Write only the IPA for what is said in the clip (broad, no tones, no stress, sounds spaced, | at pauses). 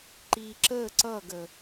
ǃ i ǁ ə ǀ ʌ ɡ ə